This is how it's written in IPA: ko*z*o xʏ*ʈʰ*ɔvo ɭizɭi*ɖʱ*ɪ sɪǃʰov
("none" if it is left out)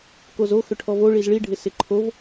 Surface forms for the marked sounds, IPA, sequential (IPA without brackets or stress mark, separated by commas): z, ʈʰ, ɖʱ